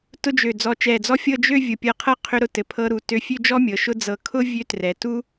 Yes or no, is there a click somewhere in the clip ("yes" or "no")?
no